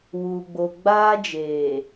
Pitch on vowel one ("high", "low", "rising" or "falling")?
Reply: low